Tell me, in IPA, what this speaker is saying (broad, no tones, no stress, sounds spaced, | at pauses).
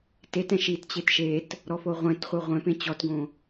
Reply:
t e t ɛ̃ ʃ i t t͡ɕ e t ʃ e t | ɾ ɔ f o ʁʷ ɛ̃ t χʷ ɛ ʁʷ ɛ̃ p ẽ t͡ɕ ɔ t ɡ õ